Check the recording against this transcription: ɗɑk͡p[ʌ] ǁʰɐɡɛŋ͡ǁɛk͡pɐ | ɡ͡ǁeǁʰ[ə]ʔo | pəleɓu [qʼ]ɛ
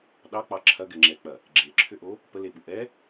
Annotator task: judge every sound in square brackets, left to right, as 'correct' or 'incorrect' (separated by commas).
incorrect, incorrect, incorrect